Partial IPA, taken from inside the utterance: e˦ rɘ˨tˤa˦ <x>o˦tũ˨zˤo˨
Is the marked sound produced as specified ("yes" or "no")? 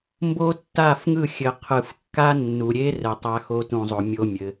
yes